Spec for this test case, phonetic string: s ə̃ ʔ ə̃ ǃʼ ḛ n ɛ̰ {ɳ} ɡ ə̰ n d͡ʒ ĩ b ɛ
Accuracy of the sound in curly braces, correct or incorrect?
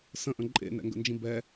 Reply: incorrect